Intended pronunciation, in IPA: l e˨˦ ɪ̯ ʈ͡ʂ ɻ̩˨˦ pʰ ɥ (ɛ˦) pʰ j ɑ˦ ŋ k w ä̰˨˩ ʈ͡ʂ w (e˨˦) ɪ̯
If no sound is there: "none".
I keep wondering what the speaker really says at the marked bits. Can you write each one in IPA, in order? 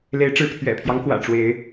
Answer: ɛ̰˨˩, e˨˦

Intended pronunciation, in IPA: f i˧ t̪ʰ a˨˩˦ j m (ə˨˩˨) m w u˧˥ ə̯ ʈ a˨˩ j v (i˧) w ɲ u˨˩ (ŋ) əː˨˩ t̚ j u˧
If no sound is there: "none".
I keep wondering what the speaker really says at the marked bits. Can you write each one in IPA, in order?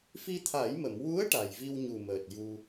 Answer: ə˨˩˨, i˧, m

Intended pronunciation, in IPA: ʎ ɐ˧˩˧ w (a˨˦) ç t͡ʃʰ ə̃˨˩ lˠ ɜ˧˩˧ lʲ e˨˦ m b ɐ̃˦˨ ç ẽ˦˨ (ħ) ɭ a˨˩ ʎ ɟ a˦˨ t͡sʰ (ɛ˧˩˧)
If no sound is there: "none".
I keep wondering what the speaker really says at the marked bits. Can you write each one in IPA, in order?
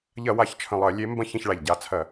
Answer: a˨˩, ç, ɜ˧˩˧

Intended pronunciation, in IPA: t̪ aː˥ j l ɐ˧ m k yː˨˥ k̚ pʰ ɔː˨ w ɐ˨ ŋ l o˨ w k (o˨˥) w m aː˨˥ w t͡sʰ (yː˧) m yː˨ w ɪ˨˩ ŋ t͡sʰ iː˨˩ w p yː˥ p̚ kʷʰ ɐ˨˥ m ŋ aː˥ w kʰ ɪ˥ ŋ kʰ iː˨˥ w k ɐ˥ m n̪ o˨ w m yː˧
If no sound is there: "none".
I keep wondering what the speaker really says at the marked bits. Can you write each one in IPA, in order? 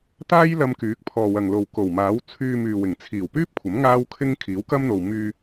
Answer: o˨˩, yː˧

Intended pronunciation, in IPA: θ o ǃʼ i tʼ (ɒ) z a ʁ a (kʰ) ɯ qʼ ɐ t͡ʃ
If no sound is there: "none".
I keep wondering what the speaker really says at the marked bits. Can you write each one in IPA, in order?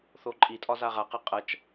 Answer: ɒ, q

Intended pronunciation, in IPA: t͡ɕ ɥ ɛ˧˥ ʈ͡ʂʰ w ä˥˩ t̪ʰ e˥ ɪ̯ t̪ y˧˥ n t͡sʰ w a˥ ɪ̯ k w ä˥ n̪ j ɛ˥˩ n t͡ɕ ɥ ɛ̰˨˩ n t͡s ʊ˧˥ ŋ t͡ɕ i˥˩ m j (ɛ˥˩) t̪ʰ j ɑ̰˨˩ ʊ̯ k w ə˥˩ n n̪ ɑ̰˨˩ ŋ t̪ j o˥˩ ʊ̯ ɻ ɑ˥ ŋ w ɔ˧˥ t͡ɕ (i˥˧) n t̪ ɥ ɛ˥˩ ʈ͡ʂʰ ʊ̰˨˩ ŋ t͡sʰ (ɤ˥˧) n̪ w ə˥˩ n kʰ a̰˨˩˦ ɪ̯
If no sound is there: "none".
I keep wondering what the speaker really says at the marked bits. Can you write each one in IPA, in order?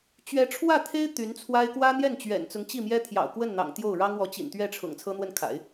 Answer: ɛ˥, ḭ˨˩, ɤ˥

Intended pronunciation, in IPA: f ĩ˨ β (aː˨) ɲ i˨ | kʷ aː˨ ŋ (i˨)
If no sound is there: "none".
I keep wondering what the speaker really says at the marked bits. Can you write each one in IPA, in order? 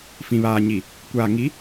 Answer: aː˨, i˨˦

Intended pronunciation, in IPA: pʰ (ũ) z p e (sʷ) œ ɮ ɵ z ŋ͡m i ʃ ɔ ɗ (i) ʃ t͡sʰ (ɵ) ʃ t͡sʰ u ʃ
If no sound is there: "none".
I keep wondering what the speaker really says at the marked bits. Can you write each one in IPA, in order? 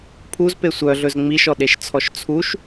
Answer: u, sʷ, e, ɔ

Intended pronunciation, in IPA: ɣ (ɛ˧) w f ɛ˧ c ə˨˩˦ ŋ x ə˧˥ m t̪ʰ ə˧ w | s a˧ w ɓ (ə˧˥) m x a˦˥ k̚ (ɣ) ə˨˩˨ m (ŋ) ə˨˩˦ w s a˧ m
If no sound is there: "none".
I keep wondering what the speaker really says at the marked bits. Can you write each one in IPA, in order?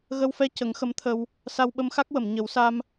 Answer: ə˧, ə˧, w, ɲ

